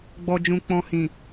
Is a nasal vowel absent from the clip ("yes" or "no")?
no